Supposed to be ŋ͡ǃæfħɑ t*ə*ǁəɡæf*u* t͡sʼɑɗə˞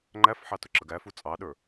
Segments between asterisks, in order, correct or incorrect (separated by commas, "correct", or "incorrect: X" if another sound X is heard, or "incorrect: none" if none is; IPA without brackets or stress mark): incorrect: ʊ, correct